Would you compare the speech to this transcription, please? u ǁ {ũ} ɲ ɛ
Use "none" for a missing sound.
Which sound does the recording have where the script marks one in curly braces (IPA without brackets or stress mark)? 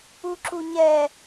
u